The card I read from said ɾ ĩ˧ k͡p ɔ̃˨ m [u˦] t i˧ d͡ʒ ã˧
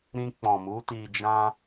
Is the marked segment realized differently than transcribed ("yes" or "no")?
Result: yes